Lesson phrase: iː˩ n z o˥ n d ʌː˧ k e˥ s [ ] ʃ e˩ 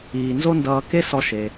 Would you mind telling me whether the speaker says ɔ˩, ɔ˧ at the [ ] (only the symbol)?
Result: ɔ˧